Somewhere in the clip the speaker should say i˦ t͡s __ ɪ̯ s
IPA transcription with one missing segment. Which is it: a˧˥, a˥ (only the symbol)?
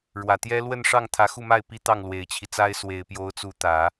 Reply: a˥